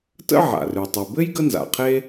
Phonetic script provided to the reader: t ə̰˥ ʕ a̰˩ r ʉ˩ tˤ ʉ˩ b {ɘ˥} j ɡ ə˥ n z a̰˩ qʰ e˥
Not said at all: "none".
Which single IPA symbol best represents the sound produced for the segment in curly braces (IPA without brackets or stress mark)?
ɘ˥